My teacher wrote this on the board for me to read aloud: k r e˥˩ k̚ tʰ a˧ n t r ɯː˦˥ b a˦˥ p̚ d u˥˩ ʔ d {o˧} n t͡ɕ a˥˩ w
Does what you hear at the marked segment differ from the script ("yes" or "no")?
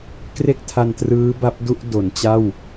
yes